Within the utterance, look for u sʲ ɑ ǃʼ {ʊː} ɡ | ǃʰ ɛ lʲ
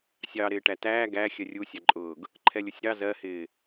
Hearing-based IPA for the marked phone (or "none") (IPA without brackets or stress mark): ʊː